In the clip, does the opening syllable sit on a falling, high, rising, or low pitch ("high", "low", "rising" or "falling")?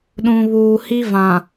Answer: low